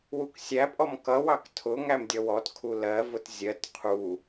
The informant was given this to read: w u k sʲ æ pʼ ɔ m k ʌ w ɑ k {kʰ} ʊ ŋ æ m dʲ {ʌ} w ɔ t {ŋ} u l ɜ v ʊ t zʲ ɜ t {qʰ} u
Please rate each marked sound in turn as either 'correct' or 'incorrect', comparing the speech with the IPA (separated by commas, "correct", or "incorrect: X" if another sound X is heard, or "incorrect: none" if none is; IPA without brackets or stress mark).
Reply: incorrect: tʰ, correct, incorrect: kʰ, correct